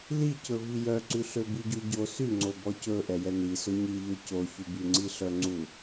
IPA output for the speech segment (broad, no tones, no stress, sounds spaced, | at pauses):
l i c ɵ v i j œ ǀ ʉ ɬ ø b i ɟ u ɟ o s y ŋ͡ǀ o b ɔ c ɵ ʔ ɛ j ɛ n i s ɵ ɲ i ʎ œ c o ç ʉ b y ŋ͡ǀ i ɬ œ ŋ͡ǀ u